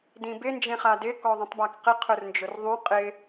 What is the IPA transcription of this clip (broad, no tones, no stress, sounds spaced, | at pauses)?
d ĩ b ɪ n d͡ʒ ẽ χ a d ɪ k ɔ ðˤ ũ tˤ b a k q ɪ qʰ ʊ r n d͡ʒ ʊ r ðˤ ũ qʼ ɪ